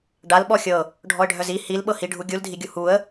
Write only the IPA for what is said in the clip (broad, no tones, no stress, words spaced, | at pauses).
ɖal ɓɔxʲɤ | ɖʱɔə̯ɖʱœzi hilɓɤ hiɖʱu ɡʲuldʱiɡʲu huə̯